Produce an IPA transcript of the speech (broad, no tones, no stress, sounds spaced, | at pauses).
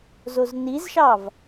z o z n i z ʃ ɑ v